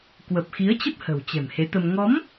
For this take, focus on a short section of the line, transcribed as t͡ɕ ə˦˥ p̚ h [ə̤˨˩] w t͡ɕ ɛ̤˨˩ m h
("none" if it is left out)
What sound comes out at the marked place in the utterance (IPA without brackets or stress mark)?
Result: ə̤˨˩